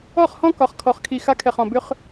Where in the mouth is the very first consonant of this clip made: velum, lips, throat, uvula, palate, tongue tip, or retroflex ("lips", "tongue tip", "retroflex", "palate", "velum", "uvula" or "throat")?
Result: uvula